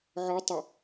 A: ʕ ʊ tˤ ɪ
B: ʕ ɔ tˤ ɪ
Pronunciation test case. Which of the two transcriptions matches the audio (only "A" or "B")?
B